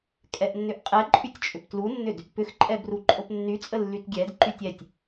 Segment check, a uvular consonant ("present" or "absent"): present